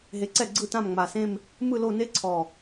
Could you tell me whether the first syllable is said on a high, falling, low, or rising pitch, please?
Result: rising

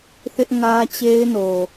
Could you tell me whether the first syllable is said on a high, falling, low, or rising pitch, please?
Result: high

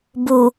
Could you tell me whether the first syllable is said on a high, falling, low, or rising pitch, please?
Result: low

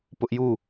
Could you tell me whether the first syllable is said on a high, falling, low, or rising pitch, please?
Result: high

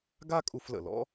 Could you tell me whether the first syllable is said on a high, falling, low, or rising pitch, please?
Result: high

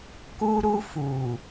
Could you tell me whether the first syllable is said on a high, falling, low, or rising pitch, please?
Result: high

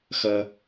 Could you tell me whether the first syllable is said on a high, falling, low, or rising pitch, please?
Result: high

